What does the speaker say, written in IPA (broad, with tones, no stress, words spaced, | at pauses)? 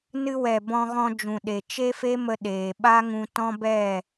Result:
nɨ˧wɛ˨ bɔ̃˧ɣɔ̃˧d͡ʒũ˨ɗe˨ t͡ʃe˦fe˦mə˧ ɗeː˨ɓa˦ŋũ˧ tɔ̃˦bɛ˦˨